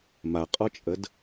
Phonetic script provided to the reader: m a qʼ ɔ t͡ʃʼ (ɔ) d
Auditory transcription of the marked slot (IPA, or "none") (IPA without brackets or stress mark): ə